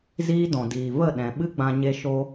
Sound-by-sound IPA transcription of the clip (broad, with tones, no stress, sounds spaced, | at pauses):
z iː˦ d ɔ̃˨ d iː˨ v ə˦˨ ɗ ɛ̃˨ ɓ ɨ˦ ɡ͡b ã˧ ɲ e˧ ʃ o˦